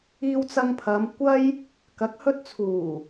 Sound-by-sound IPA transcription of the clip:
iː˧wt͡sɐ˧ŋpʰɐ˨˧m kʷɐ˥j | kɐ˨k̚hɵ˧t̚t͡sʰuː˨˩

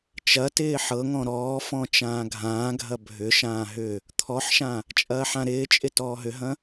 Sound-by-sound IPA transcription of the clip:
t͡ʃɐtɪː ħɤŋɔ̃ ɾɔːfɔ̃ t͡ʃãːɡʱãːɡʱɐ bʱʏʃãː ɦʏ | t̪ʰɔħʃã | t͡ʃʼɐːħãɾɪːt͡ʃʼɪ tɔːɦʏɦɐ̃

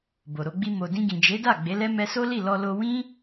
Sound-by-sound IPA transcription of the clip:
bo˨ɾo˧ɡ͡bi˧ mo˨dĩ˧ɡĩ˨ d͡ʒe˨˦da˦˨ ɡ͡be˨˦lɛ˦ mɛ˧ so˦li˦˨ lɔ˧lo˧ wĩ˦

